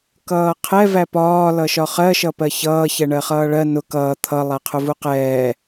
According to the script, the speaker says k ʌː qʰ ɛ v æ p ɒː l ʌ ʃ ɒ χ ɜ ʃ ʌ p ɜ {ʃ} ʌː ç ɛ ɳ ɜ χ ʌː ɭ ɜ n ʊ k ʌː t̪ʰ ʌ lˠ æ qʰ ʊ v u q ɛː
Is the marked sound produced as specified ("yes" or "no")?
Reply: no